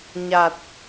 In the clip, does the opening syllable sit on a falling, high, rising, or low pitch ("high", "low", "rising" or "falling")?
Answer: low